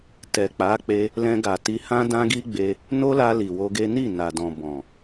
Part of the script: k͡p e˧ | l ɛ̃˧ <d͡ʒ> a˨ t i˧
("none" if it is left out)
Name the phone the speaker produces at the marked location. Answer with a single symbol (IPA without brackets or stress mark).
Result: ɡ